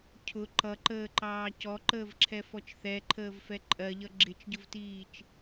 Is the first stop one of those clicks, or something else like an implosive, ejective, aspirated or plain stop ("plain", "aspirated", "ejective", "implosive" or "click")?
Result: aspirated